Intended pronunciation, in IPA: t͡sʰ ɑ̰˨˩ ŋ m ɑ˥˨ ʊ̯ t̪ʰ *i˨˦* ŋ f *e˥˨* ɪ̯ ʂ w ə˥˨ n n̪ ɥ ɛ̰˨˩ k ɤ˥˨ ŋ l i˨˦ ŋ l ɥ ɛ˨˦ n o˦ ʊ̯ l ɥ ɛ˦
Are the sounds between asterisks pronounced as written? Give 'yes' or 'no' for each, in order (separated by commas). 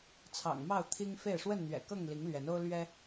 no, yes